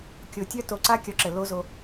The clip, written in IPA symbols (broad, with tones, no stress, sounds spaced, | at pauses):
kʲ o˨ tʲ œ˦ t o˨ ǀ a˦ kʲ ɒ˨˦ ǁ ɘ˨ l o˦ z o˦